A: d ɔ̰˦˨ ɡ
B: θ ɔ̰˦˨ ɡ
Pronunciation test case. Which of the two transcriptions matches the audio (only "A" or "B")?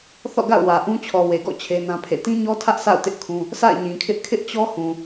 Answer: B